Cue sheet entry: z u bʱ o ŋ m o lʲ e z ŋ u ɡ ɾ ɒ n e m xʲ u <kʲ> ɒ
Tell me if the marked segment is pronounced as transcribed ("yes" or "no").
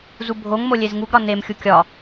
yes